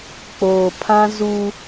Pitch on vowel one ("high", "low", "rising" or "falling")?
low